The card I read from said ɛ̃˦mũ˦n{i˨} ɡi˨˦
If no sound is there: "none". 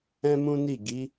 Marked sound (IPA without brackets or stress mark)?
i˦˨